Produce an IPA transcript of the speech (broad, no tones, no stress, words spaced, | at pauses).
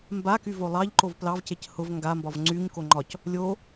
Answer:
mbaky volˠɑʎǃov plɑvcec hʊv ŋɡambɒv ŋ͡ǀyɲko ŋ͡ǃɒc | lʲo